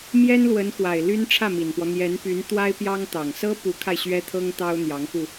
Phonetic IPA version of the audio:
m j ɛ˥ n l w ə˧˥ n x w a˨˩ ɪ̯ l y˥ n ʈ͡ʂʰ ä˥˩ m i˨˩ n p w ɔ˦ n̪ j ɛ˧˥ n p y˧˥ n t̪ w a˥ ɪ̯ p j ɑ˥ ŋ t̪ ɑ˨˩ ŋ s ɤ˥ p u˧˥ kʰ a˧ ɪ̯ ɕ ɥ ɛ˥ t̪ʰ ɤ˥ ŋ t̪ ɑ˥ ʊ̯ n̪ j ɑ˧˥ ŋ x u˧

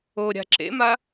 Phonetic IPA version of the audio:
o ɾʲ a̤ ǁ ḛ m a

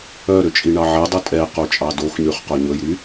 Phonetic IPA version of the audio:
œ ɾ ø t͡ʃʼ i ɳ ɑ ʕ ɛ dˤ u tʼ ɛ q o t͡ʃʼ ɑ d o x ɲ ʉ χ q o ɲ ɵ j ɾ y

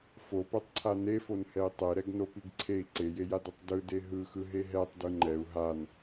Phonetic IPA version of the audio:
f o p ɛ tˤ ǀʰ a n e f o n h ɛ i̯ tˤ e ɾ ɛ ɡ n o p i ɡ ǀʰ e i̯ ǀ e j e j a d ɯ tˤ d ɯ d e ɦ ɯ x ɯ ɦ e ɦ ɛ tˤ d ɯ ŋ͡ǃ ɛ u̯ ɦ a n

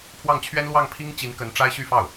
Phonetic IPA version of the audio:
pʰ w ɑ˥˩ ŋ t͡ɕʰ ɥ ɛ˥ n l w ɑ˥˩ ŋ pʰ i˥ ŋ t͡ɕ i˧˥ n k ə˧˥ n ʈ͡ʂ a˥ ɪ̯ ɕ y˥˧ f ɑ˥˩ ʊ̯

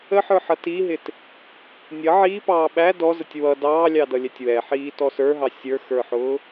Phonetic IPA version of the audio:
ə ħ ə˞ ħ ʌ t i ɦ ɪ t | nʲ ʌ ʕ iː p ɑː ɓ æ d ɔ z ə tʲ w ʌ d ɑː lʲ ɑ d ʌ lʲ ɛ tʲ w ɛ ħ iː t ɔ s ə˞ ɦ ɑ sʲ ə˞ x ə˞ ħ ʊː

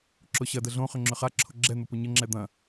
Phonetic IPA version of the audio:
ǁ ʊ ɕ ɐ d ə ɮ õ χ ʏ ŋ͡ǁ ʏ χ a ǁʰ ʊ ɡ͡ǁ ɛ n̪ ʊ p ʊ ɲ ə ŋ͡ǁ ɛ d̪ ɐ̃

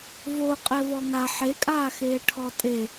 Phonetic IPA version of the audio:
v o qʼ ɛ v ɔ ŋ a ħ e kʼ aː x eː ʈʰ ɔ tʼ e

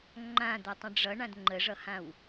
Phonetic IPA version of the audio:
ŋ͡ǃ ã d̪ ʌ tˤ ə̃ ɖ͡ʐ ʌ ɳ ã d ŋ͡ǃ ə ʐ ʌ h ã w

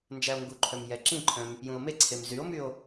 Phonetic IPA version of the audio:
n d͡ʒ æ o̯ ŋ ɡ u ǃʰ œ m j ɛ ǁ ĩ ǃʰ œ̃ m | j ũ o̯ m e ǀʰ e m z y o̯ m y o̯

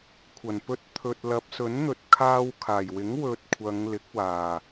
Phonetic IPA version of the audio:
kʷʰ ɐ˨˩ n p ɵ˧ t̚ t̪ʰ ɵ˨ t̚ l ɐ˨˥ p̚ s ɵ˨˥ n n̪ ɵ˨ t̚ kʰ aː˧ w kʰ aː˨˩ j w ɪ˨˥ ŋ w ɵ˧ t̚ kʷʰ ɐ˨˧ ŋ l ɪ˨˥ k̚ w aː˨˩

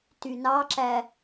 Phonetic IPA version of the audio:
t y n ɑ ǁ æ

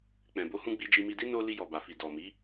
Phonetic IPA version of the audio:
k͡p ɛ̃˨ b o˨˦ h ũ˧ ɡ͡b i˧ d͡ʒ i˧ m i˧ d i˦ n o˧ l i˧ j ɔ˨ b a˨ f i˨ d ɔ˨ m i˨˦

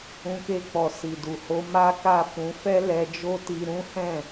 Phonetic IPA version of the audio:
ũ˧ k e˧ k͡p ɔ˨ s i˨ d u˨ h o˧ m a˦ k a˦˨ f ũ˨˦ f ɛ˦ l ɛ˧ d͡ʒ o˦ t i˧ ɾ ũ˦ h ɛ̃˦˨

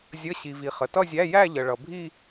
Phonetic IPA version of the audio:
zʲ ə˧˥˧ ɕ i˩ v i˩ χ ə˩ t ʌ˥˧ zʲ æ˧˥˧ j æ˥˧ ʎ ə˩ ɭ ʌ˩ bʱ i˥˧

